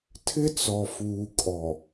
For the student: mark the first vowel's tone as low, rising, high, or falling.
high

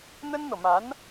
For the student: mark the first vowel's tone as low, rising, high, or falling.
high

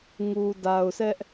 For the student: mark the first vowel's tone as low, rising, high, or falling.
low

